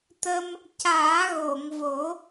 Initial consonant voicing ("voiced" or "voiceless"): voiceless